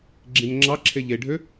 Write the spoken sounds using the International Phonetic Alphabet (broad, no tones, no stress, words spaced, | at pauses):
ɡ͡ǁĩnŋ͡ǁɑǁʰe ʎeɖʱø